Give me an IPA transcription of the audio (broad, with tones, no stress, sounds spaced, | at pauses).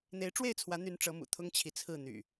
n̪ e˨˦ ɪ̯ ʈ͡ʂ w e˥˨ ɪ̯ t͡sʰ w ä˨˦ n̪ y˨˦ n ʈ͡ʂ ɤ˨˦ m ṵ˨˩ t̪ʰ ʊ˦ ŋ t͡ɕʰ i˨ t͡sʰ ɹ̩˥˨ n̪ y̰˨˩